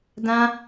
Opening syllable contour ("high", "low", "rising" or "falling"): high